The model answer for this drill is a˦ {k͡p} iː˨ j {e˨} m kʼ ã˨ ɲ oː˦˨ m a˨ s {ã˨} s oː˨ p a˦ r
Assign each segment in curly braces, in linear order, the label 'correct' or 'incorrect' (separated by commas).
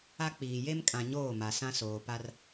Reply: correct, incorrect, incorrect